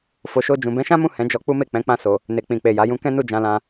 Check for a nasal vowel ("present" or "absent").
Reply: present